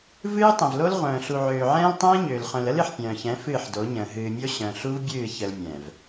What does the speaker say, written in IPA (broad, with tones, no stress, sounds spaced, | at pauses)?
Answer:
v ɨː˦ tˤ ə̃˨ v l o˦ l ʁʷ œ̃ː˨ ɬ u˨ ʕ øː˨ ʕ ɛ̃ː˦ l tˤ ɛ̃ː˦ ɲ øː˨ l χ œ̃˨ l ə˦ l ɨ˨ ħ pʲ œ̃ː˨ ç ɛ̃˨˦ f ɨː˦˨ ħ d o˨˦ ɲ ə̃ː˨ ɦ ɨː˨ mʲ o˦ ɕ œ̃˨ ɬ u˦ v bʲ ɨː˦˨ ç ə˨ l mʲ ɛ̃˨ v